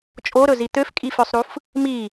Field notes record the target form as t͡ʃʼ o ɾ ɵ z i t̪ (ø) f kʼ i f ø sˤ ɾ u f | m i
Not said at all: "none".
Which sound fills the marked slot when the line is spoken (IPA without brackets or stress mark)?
ø